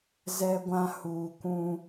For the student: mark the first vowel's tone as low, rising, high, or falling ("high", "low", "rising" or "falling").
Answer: high